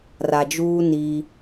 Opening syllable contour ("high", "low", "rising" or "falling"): low